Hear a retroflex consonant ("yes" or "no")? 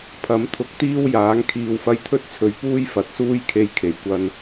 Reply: no